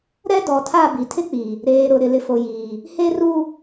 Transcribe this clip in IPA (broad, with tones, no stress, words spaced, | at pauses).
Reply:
ɾɛ˦dɔ˨tʰa˦˨ bi˨tʰɪ˦k͡pi˨ | ɾeː˨ɾʊ˨ ɾɪ˨lɪ˨fo˨jiː˨ | he˦ru˦